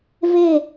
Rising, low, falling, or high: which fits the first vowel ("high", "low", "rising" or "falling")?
falling